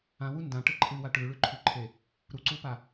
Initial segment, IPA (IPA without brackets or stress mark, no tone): ã